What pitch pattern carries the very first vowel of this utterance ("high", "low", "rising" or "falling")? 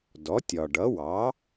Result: rising